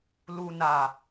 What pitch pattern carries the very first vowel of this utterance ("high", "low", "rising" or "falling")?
low